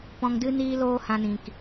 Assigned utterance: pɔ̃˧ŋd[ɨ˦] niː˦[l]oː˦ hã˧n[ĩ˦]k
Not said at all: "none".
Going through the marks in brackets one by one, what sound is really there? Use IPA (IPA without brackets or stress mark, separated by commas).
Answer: ɨ˦, l, ĩ˨